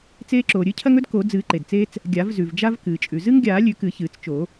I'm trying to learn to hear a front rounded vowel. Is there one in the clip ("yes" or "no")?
no